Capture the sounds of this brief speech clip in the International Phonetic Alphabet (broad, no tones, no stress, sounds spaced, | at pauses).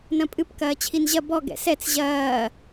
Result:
n ɐ̃ pʼ ɨ p k ɐː t͡ɕʰ i n ʑ ɐ b ɔ ɡ ɛ̰ s ɛ t͡s ʑ ɐː